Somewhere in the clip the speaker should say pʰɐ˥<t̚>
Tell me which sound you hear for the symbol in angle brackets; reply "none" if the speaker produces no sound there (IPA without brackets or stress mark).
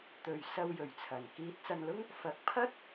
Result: t̚